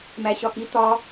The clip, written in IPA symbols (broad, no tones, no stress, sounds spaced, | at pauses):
m æ ɕ ɒ x i t̪ ɒ